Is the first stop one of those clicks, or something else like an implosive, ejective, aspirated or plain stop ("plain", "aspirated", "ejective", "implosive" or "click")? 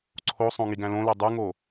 click